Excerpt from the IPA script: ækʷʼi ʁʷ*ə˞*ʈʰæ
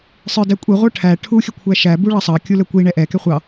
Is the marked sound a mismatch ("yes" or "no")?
no